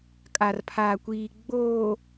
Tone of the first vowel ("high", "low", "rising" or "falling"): low